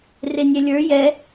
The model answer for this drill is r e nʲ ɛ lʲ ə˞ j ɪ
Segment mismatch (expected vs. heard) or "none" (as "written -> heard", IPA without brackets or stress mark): ɪ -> ɛ